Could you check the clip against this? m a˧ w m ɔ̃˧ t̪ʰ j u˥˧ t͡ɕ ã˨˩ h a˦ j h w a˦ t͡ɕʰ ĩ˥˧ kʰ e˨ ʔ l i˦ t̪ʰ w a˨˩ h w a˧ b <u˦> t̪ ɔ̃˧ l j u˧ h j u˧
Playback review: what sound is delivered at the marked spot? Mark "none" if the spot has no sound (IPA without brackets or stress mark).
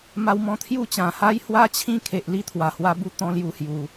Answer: u˧